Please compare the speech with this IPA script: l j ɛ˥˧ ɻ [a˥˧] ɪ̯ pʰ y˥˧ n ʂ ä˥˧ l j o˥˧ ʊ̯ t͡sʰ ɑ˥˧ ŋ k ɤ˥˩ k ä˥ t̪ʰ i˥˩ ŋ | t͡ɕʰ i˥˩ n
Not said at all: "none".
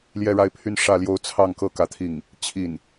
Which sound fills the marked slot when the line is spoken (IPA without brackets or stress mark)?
a˥˧